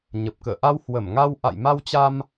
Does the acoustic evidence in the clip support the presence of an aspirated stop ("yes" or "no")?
no